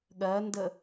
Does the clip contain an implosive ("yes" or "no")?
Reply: yes